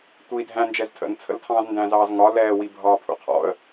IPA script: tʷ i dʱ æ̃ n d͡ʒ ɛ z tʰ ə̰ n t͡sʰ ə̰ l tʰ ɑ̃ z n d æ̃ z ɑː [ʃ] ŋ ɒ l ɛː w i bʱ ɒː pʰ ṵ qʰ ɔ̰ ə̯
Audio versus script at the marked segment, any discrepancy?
yes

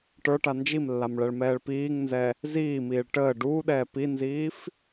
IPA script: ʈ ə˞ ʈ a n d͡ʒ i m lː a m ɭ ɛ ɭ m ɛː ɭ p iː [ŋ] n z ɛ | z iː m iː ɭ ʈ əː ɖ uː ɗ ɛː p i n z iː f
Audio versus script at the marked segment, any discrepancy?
no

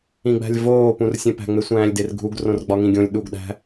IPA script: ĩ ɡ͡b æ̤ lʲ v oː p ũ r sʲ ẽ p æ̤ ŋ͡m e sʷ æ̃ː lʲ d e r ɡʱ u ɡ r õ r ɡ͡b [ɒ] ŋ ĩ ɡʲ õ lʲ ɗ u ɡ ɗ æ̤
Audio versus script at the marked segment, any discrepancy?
no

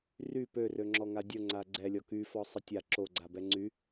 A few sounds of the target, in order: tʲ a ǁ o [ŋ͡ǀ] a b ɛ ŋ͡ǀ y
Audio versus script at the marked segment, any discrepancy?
yes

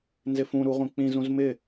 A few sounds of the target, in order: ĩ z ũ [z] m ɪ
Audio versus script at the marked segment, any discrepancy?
no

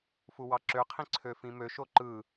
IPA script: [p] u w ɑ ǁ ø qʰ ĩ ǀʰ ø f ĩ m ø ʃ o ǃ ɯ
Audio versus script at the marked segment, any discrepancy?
yes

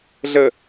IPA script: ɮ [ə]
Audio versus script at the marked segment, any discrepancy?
no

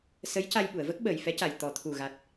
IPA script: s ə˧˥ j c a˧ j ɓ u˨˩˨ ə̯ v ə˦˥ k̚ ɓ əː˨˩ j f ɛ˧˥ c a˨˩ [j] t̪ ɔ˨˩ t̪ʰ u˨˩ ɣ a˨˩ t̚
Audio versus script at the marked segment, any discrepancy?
no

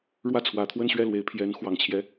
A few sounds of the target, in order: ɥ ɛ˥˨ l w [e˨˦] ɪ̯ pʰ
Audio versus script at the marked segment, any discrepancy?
no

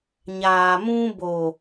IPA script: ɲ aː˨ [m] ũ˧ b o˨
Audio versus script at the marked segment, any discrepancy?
no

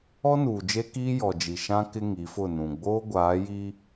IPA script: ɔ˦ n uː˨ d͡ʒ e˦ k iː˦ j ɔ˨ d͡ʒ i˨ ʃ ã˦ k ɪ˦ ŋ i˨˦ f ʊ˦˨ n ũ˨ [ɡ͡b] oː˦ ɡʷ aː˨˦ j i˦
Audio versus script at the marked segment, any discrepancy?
no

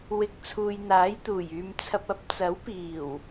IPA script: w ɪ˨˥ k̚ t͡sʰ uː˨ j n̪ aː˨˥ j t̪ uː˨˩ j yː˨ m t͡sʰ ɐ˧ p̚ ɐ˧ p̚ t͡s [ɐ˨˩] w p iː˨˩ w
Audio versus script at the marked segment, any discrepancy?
yes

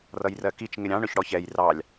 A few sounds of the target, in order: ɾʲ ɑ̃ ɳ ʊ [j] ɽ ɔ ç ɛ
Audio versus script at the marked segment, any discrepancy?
yes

